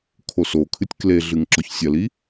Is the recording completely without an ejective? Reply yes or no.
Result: yes